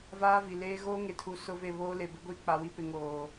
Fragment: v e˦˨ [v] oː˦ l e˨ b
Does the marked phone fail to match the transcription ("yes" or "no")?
yes